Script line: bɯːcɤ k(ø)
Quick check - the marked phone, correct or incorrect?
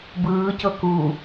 incorrect